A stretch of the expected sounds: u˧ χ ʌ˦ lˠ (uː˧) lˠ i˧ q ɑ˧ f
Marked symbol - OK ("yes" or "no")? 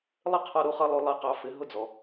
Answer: no